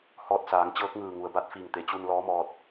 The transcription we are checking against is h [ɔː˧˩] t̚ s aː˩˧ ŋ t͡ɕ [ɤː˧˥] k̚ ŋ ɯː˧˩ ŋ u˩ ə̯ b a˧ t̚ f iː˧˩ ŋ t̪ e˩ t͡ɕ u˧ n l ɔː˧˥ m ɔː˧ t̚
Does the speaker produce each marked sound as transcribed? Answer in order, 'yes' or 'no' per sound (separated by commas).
no, yes